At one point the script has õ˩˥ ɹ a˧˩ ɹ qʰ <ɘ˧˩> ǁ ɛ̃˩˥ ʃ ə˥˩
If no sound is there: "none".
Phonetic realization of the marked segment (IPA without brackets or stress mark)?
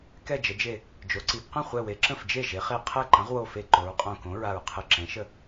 ɘ˧˩